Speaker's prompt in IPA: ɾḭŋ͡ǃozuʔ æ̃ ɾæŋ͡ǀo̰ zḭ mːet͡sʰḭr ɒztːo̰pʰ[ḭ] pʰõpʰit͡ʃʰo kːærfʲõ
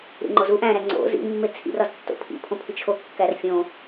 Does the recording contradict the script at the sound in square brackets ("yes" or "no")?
no